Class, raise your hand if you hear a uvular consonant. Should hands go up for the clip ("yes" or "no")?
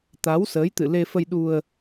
no